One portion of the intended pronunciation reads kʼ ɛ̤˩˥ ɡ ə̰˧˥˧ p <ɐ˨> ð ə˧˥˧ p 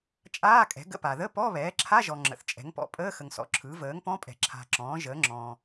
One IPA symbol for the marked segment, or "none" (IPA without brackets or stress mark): a˨